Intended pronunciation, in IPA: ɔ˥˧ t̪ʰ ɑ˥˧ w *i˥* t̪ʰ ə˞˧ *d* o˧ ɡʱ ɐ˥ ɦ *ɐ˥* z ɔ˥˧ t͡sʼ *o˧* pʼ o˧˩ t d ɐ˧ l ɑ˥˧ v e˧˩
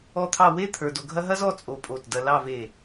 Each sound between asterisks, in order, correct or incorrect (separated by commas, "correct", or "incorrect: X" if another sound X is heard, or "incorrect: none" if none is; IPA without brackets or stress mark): incorrect: e˥, correct, correct, correct